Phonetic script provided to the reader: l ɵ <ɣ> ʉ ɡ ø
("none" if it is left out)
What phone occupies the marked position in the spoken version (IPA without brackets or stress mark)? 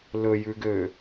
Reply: j